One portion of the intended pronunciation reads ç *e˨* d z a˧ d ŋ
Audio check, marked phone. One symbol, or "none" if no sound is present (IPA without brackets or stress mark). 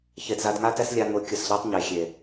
e˨